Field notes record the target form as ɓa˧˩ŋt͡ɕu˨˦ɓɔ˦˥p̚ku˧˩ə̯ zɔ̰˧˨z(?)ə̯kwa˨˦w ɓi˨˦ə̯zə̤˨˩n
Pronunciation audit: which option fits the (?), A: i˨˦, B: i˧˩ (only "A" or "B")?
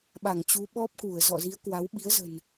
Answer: A